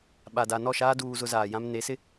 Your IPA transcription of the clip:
ɓ a˨ d a˨ n ɔ˦˨ ʃ aː˦ d uː˦ z ʊ˦ z aː˨ j ã˦ m n e˨˦ s ɪ˦

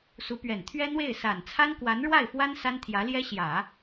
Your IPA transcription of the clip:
s u˧˥ p ɥ ɛ˨˩ n t̪ʰ ɥ ɛ˥ n̪ w e˥˩ ɪ̯ s a˨˩ n t͡sʰ a˥ n k w a˧˥ n ɻ w a˥˩ ɪ̯ f w a˥ n s a˥ n t̪ʰ j ä˧˥ l j ɛ˥ ɕ j ä˨˩˦

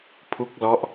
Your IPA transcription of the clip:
pʰ u˦˥ k̚ l ɔ˦˥ ʔ

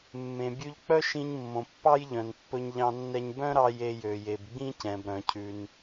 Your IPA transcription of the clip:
mː ẽ˩ bʲ ʉ˧ ʎ k͡p œ˥ ʃ ĩ˧ ɲ mː õ˩ pː ɑ˥ j ʎ œ̃˩ n pː ɵ˧ ɲ ʎ ɑ̃˧ nː ɛ˧ ɲ b œ̃˥ ɾ ɑ˧ j e˧ j ø˩ j e˩ b ɡ͡b ĩ˥ c ɛ̃˩ b ɾ œ̃˩ cʰ ʉ˩ n

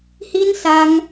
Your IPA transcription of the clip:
h i˧ n s a˧ ŋ

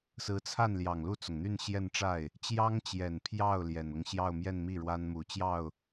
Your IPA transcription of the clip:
s ɹ̩˧˥ t͡sʰ a˥˩ n l j ɑ˨˩ ŋ l u˥˩ t͡s ʊ˩ ŋ n̪ y˥˧ n ɕ j ɛ˥˧ n ʈ͡ʂ a˥˩ ɪ̯ | t͡ɕ j ɑ˥ ŋ t͡ɕ j ɛ˨˩ n pʰ j ɑ˥˩ ʊ̯ l j ɛ˨˩ n ʊ˦ ŋ ɕ j ɑ˥˧ ʊ̯ m j ɛ˥˧ n m i˥˩ ɻ w a˥ n m u˨˩ t͡ɕ j ɑ˥˩ ʊ̯

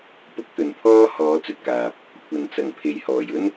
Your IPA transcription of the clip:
p ʊ˥ k̚ t̪ ɵ˨ n pʰ ɔː˥ h ɔː˨˧ t͡s ɵ˨ t̚ k aː˨ p̚ | kʷʰ ɐ˨ n t͡s ɐ˨˩ ŋ pʰ e˨ j h ɔː˨˩ j ɵ˥ n

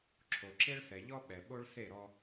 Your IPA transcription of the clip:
ǁʰ o˨ ǁ e˦ ɭ θ ɛ˨ ʎ ɔ˦ ɓ ɛ˨ ɓ o˦ ɭ θ e˦˨ ɾ ɔ˦

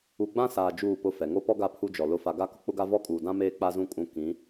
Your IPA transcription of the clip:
u˨ ɡ͡b ã˦ s aː˨ d͡ʒ uː˦˨ p ʊ˦˨ f ɛ˨ ŋ o˦ p ɔ˦ ɡ a˦ pʰ u˦ d͡ʒ ɔ˨ l ʊ˨˦ f a˨ ɡ a˦ k ʊ˦ k͡p ʊ˦ ɡ a˦ v ɔ˦ kʼ uː˨ d ã˦ m eː˦ k͡p a˦ z ũ˦ kʼ ũ˦ k ĩ˨˦

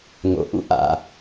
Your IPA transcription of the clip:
ŋ o̰˩ ʔ ṵ˧ ʔ a̰˩

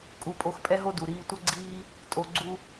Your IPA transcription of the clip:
kʼ u˧ pʼ o˧ x pʼ ɛ˦ ɦ o˦ d u˨ ɾ iː˧ tʷ ʌ˦ ɡ͡ǀ iː˦ | tʼ o˧ ɡ͡ǀ u˦

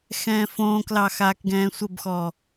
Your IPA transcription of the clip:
x ɛ̃ː f õː k l ɑ x aː k ɡ ɛ̃ː sʷ ə b x ɔː

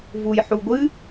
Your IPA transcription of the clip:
v u j ħ u ɡʷ ɨ

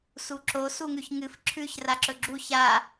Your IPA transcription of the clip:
s u ǁ o s u ŋ ʉ ç ŋ ɨ f ǁʰ ʉ ç r a ǁ ɵ ɡ͡ǁ u ç a

